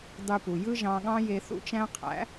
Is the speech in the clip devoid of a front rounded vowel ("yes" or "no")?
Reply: no